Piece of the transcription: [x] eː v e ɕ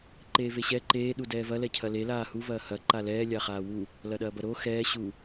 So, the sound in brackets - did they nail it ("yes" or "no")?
no